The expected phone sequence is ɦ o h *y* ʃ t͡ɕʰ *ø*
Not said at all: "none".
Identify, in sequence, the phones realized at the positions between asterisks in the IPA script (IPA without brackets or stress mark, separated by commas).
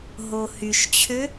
y, ø